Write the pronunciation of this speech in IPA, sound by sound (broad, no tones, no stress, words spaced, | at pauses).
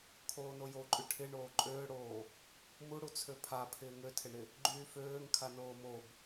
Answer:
kʰoːnojoǃʼy ʈʰɪ ɳoːǃʼøːɽoː | muɽu t͡sʰøpʰa pʰɪːŋøtʰɪɳɪ | ɡ͡ǃyːføːŋ kʰanoːmob